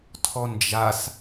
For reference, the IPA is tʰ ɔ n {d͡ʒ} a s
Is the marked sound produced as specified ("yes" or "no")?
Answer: yes